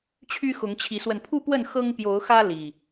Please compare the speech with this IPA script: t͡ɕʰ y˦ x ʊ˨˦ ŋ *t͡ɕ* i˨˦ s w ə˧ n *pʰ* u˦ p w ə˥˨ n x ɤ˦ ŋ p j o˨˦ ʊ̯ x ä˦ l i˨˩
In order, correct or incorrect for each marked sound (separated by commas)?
incorrect, correct